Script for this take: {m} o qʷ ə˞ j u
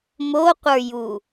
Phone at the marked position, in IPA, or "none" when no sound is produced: m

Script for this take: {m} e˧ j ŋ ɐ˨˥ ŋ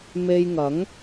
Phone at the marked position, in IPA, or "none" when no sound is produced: m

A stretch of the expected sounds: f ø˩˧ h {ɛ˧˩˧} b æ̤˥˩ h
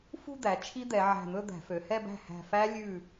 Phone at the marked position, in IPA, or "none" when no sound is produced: ɛ˥˧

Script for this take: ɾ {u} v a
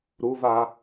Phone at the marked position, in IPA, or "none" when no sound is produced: u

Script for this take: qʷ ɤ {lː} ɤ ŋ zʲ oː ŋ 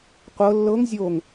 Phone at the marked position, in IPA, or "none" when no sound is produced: lː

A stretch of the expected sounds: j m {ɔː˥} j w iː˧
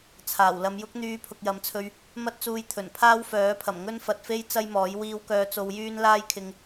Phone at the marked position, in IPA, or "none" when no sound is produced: ɔː˨˥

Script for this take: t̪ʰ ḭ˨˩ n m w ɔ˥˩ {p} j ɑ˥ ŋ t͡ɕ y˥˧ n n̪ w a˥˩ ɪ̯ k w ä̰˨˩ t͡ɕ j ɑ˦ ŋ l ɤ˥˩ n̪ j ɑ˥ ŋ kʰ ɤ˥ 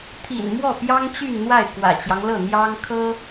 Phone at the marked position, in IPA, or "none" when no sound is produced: p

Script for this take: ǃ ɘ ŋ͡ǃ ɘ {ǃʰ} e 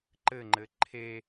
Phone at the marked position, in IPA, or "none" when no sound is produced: ǃʰ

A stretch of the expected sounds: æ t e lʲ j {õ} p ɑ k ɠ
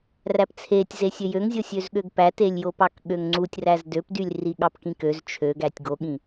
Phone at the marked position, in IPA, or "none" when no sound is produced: o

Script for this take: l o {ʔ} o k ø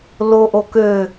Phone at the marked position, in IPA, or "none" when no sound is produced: ʔ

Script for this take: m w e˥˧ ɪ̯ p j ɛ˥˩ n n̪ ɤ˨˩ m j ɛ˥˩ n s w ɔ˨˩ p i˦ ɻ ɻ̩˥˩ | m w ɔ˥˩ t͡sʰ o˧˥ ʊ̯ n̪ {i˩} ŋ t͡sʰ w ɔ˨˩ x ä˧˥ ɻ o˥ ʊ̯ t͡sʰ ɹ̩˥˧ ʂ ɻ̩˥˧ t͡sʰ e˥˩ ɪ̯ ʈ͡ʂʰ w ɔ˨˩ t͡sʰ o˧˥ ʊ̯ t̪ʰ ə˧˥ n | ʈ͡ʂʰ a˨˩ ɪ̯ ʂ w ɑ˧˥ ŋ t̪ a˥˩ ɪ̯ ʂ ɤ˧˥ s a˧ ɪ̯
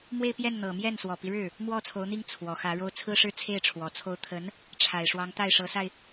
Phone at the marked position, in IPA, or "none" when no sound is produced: i˥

